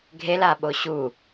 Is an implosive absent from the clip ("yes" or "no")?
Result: no